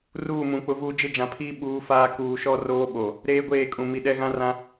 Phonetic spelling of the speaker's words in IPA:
r uː˦˨ m ũ˨˦ k͡p ʊ˦ v uː˦ d͡ʒ ɪ˦ d͡ʒ ã˨ pʰ iː˦ ɓ uː˦ f aː˦ k uː˨ ʃ ɔ˦ r oː˦ ɓ o˨ | ɾ eː˦ ɡʷ eː˦˨ kʼ ũ˨ m i˨ ɗ ɛ˦ ɣ ã˦ r ã˦

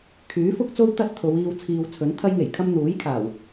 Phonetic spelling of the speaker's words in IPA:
kʰ yː˨˥ f ʊ˥ k̚ t͡s o˥ w t̪ ɐ˥ t̚ t̪ʰ o˨˧ w iː˧ w t͡sʰ iː˨ w t͡sʰ ɵ˨˥ n t̪ʰ ɐ˥ j ŋ e˨˩ j kʰ ɐ˥ m n̪ uː˨˥ j kʰ aː˨˩ w

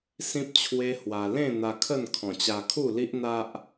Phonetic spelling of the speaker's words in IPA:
s ĩ˦ p̚ t͡ɕʰ w e˦ h w a˧ l ẽ˥˧ n̪ a˧ kʰ ə˥˧ n kʰ ɔ̃˨˩ t͡ɕ a˧ kʰ u˥˧ l i˦ ʔ n̪ a˦ ʔ

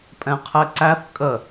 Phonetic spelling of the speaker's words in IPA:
pʼ ɛ̃ qʰ ɛ ǀ æ θ kʼ ə

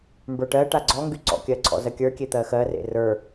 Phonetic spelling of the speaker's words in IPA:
m b ə˞ ʈ ɜ ʈ a ɡ͡ǀ ɔ ŋ ɡ y ǀ ɔ̰ kʲ ɜ ǀʰ ɔ̰ z ɜ kʲ ə˞ kʲ e t̪ ɜ x ɜ r ḛ r ə˞

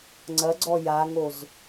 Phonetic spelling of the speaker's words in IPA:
ŋ͡ǀ ɐ ɡ͡ǀ ɔ j a ŋ o z

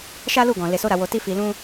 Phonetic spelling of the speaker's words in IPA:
ʃ a˦ l u˦˨ ɡ ɔ̃˨ l e˨ s o˧ ɾ a˨ w o˨ t i˧ f i˨ l ũ˧

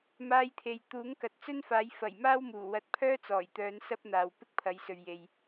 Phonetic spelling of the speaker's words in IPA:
m aː˧ j t̪ʰ e˨ j t̪ uː˨˥ ŋ k ɐ˨ t̚ t͡s ɵ˥ n f aː˨˥ j f ɐ˨˩ j m aː˥ w m uː˨˩ w ɐ˧ t̚ pʰ œː˥ t͡s ɔː˨˩ j t̪ œː˨˧ n s ɐ˥ p̚ n̪ aː˨ w p ɪ˥ k̚ pʰ ɐ˨˧ j s ɵ˨ ɥ j e˨ j

